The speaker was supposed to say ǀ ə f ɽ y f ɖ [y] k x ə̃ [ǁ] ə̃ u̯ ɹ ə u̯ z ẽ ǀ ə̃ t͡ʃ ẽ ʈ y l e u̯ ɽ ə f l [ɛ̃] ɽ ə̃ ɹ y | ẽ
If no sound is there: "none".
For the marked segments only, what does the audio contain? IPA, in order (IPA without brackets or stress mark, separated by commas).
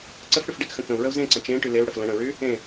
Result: e, k, ə̃